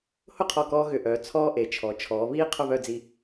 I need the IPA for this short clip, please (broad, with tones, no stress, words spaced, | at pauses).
hʊ˥˧qʰɔ˧˩kɔː˧ ɣʏ˧˩ʔœː˩˧ t͡sʰɔː˥ʔe˩˧t͡ʃʰɔ˩˧ t͡ʃʰɔː˩˧βiː˥ qʰʊ˥˧βœ˥˧d͡zi˧